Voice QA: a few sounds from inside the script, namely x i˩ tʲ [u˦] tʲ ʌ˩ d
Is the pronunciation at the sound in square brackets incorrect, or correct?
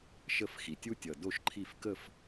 correct